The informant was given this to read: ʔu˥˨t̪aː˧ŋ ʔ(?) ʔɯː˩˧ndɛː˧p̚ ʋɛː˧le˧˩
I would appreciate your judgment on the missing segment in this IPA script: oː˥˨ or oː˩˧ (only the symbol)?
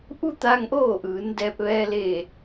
oː˥˨